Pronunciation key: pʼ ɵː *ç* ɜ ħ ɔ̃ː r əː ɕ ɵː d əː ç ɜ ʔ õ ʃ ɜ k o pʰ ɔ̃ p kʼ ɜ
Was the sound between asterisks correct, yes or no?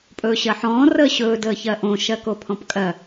no